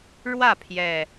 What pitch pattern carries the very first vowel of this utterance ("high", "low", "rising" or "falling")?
falling